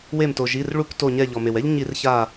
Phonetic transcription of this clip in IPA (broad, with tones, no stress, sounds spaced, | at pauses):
w e˧˩ m t o˩ ʒ i˩˧˩ r ɭ u˧˩˧ k t o˧˩ ɲ ɛ˧˩ ʎ ɔ˩ m e˩ w ɛ˦ ʎ ɲ i˧˩˧ r ç a˧˩